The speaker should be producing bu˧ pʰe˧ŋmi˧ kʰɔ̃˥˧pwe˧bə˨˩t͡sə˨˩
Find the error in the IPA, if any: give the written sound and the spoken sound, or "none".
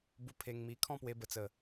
none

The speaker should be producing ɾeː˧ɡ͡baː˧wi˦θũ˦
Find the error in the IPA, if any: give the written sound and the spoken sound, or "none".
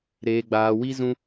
θ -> z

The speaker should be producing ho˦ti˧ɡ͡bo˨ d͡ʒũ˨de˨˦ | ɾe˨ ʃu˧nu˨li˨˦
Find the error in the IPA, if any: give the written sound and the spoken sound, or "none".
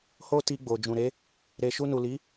d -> ɾ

